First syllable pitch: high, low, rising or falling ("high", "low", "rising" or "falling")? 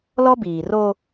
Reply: high